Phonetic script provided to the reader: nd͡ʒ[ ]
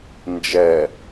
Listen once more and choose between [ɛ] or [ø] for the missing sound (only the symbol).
ɛ